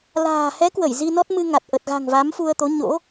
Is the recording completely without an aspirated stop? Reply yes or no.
yes